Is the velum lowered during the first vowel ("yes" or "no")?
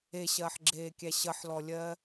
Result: no